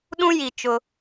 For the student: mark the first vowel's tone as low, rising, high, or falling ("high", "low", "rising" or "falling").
high